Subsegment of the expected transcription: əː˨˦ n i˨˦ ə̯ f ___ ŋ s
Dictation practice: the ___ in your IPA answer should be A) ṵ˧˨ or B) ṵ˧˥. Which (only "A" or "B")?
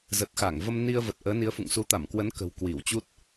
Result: A